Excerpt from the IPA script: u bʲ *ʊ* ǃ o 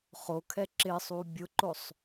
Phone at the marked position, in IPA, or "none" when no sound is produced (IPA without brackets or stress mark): ʊ